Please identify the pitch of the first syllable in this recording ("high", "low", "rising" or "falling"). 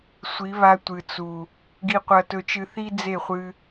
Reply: rising